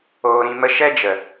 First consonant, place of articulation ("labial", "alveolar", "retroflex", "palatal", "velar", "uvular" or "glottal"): alveolar